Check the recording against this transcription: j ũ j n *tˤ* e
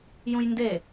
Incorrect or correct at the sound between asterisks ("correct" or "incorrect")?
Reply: incorrect